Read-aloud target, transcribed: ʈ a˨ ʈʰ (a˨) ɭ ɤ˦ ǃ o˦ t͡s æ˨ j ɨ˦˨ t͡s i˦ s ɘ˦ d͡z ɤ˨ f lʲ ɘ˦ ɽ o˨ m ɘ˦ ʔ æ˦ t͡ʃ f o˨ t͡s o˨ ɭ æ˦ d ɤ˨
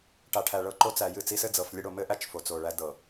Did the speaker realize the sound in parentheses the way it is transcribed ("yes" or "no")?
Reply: no